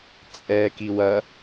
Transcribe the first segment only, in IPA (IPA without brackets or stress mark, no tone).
t͡sʼ